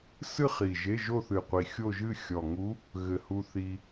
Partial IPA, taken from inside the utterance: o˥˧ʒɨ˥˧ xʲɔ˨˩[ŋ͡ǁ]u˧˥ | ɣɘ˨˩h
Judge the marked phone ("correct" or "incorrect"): incorrect